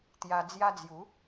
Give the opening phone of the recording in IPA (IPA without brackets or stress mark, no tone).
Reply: t̪